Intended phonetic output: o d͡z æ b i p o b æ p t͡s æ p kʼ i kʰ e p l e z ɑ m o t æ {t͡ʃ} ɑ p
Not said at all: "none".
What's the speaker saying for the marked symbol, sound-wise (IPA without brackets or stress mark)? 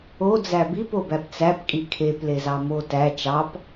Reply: t͡ʃ